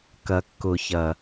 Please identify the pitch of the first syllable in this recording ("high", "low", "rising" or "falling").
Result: low